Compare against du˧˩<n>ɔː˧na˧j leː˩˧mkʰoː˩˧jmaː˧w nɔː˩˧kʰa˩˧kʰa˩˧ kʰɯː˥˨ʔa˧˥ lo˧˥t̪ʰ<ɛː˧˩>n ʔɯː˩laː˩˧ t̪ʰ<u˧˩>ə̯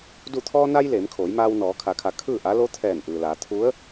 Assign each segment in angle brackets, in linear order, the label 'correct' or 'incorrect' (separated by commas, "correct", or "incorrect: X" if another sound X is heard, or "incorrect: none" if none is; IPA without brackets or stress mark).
incorrect: t̪ʰ, correct, incorrect: u˧˥